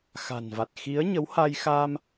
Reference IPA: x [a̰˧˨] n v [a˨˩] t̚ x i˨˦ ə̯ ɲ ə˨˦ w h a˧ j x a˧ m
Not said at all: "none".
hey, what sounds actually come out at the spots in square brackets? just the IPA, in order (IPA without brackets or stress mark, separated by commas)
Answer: a̤˨˩, a˨˩